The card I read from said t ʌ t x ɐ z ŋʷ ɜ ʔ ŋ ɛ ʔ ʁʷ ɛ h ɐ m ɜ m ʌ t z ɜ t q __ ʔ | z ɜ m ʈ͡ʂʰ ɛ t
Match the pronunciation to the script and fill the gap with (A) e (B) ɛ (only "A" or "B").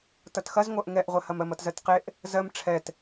A